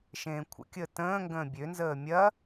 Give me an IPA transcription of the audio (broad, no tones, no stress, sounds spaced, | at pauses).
ʃ ẽː kʷʰ ə̰ kʲ əː t ə̃ː ŋ ɡ ə̃ː bʲ ø n z əː mʲ ɐ